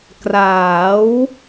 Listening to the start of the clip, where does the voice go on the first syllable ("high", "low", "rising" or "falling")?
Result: rising